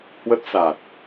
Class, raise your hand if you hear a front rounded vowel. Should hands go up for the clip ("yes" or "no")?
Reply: no